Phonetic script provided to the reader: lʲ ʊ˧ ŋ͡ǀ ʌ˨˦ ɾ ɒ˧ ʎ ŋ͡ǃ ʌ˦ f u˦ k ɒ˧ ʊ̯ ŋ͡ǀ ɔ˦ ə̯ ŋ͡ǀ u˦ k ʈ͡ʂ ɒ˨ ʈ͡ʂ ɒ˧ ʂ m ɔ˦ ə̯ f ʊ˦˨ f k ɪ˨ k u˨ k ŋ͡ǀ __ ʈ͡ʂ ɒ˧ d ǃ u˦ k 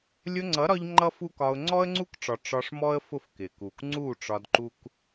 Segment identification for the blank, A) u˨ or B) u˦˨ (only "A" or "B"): B